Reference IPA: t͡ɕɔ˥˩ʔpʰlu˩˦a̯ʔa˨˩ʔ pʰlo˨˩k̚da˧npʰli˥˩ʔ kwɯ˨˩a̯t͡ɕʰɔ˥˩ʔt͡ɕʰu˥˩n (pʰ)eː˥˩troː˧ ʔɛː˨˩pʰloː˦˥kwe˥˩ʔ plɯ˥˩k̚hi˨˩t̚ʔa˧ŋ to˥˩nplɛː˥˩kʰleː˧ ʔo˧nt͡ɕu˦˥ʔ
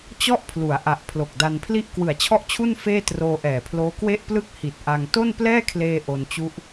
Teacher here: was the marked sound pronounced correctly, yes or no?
no